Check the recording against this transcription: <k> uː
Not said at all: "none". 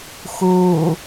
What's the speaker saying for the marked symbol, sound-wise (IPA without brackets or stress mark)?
x